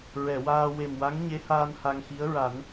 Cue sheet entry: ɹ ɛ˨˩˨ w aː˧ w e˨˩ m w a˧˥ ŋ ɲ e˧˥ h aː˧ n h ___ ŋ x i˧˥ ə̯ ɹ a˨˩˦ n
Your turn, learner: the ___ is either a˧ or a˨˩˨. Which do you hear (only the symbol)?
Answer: a˧